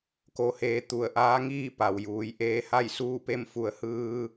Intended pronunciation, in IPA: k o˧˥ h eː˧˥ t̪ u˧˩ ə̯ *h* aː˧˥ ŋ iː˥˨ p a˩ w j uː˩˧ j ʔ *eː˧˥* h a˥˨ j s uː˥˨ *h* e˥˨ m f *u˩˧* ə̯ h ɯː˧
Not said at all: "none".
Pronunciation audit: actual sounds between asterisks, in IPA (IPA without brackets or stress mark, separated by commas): ʔ, eː˧˥, p, u˩˧